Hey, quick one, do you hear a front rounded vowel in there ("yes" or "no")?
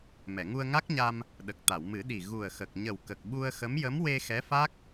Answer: no